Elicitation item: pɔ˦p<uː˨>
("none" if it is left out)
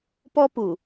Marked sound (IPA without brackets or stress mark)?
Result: u˨